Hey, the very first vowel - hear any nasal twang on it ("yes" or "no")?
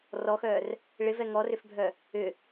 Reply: no